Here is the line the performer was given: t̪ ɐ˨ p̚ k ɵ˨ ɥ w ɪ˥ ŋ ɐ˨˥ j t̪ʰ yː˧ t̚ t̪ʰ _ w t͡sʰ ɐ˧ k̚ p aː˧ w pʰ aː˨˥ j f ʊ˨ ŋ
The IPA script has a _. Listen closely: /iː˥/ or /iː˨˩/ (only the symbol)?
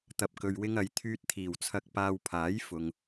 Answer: iː˨˩